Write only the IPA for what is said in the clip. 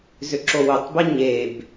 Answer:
zʏǁowʏtˤbe ɲeb

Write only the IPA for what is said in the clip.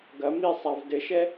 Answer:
ɡɐ misˤav dɘʃɛ

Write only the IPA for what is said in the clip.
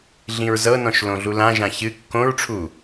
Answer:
ɮĩɹzɤnɔ̃ʃ lõɮulãʒã çɨ kːõɹʈ͡ʂʰu

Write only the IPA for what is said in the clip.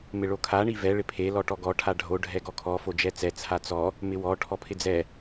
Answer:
mɪɭokʰa ɳivɛ ɭɪpʰe lɔʈɔɡɔ ʈʰaɖʱo ɖʱɛɡɔkʰɔ fod͡ʒɛt͡sɛ t͡sʰat͡sɔ | mɪwɔ ʈʰɔpʰɪd͡zɛ

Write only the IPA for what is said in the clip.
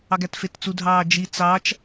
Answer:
ɑɡætfett͡su dʱɑːd͡ʒi t͡sɑt͡ʃ

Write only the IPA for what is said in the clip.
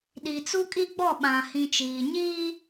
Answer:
ɗi˨t͡su˦kʼi˦ ɡ͡bɔ˦˨ɓã˨ hĩ˨t͡ʃiː˨ ɲiː˦

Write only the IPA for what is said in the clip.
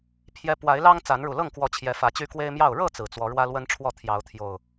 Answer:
pʰjɛ˦ pwa˨˦ɪ̯lɑ˦ŋ t͡sa˨˦nɻu˨˩lɤ˥˨ŋkwɔ˨˦ t͡ɕʰjɛ˨˦fä˨˦t͡ɕy˦ kwe˦ɪ̯mjɑ˥˨ʊ̯ ɻɤ˥˨ t͡sɹ̩˨˩t͡swɔ˨˦ ɻwä˦lwə˦nʈ͡ʂʰwɔ˥˨ t̪ʰjɑ˨˦ʊ̯ t̪ʰjo˨˩ʊ̯

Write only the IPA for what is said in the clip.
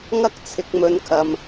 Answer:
ŋɐ˥k̚t͡sʰɪ˨k̚ mɵ˧nkʰɐ˨m

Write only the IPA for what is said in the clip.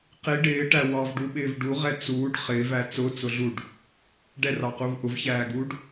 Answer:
qi ɖɪːʈæ wɑvɖuɓɪːv ɖuʁɛ t͡suːɖ χɪːvæ t͡sʊt͡sʊ ɮuɖ | ɖɛrɑquv ʔʊvçæːɡuːɖ

